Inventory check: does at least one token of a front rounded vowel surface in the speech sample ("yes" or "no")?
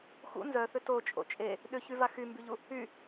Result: yes